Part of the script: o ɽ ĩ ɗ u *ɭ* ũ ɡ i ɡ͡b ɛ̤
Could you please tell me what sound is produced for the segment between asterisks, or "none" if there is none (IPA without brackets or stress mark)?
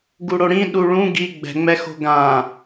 ɭ